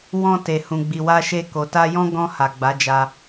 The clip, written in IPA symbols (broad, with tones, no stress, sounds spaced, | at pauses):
w ɔ̃˧ t e˨ h ũ˨ ɡ͡b i˨ w a˧ ʃ e˧ k o˨ t a˧ j ɔ̃˦ ɡ ɔ̃˧ h a˨ ɡ͡b a˨˦ d͡ʒ a˧